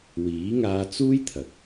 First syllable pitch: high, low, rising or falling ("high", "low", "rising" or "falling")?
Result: rising